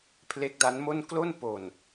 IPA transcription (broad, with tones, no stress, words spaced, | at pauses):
pʰle˦˥k̚da˦˥nmo˥˩n klo˥˩n po˨˩n